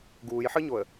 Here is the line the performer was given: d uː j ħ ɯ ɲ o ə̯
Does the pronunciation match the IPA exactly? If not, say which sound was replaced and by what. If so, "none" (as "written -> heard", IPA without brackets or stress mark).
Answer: d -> ɡ